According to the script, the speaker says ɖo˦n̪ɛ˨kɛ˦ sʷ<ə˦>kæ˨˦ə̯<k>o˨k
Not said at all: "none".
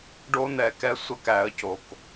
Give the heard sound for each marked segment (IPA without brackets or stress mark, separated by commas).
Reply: ə˦, c